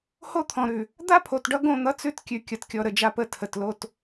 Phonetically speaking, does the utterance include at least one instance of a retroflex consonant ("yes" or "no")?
yes